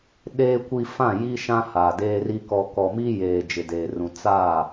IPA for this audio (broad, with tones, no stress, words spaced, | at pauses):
ɗeː˨kʷi˨ fã˦˨ji˦ʃã˦ ha˨deː˦ri˦ kɔ˨kɔ˨mi˦ jeː˨d͡ʒɪ˨deː˨rũ˨ t͡sa˦˨